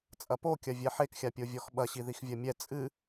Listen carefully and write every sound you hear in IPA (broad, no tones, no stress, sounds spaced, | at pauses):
t͡sʼ ɐ p o kʲ ɐ vʲ ɛ ħ e k xʲ a pʲ o vʲ ɔ x ɓ ɐ ɕ i ð i x vʲ ɐ mʲ ɛ t͡sʼ ɨ